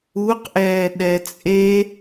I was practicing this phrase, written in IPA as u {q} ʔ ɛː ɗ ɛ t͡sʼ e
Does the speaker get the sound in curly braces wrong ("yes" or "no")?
no